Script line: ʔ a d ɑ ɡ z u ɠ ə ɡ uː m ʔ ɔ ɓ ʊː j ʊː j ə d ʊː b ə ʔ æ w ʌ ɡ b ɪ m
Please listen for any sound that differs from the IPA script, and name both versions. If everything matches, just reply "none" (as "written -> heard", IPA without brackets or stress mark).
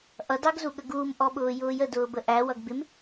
a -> ʌ